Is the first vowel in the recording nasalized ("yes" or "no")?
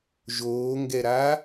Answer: no